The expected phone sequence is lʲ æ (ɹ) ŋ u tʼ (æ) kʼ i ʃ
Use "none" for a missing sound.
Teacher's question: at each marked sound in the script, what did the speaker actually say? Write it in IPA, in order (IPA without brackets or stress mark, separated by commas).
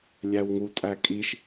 w, æ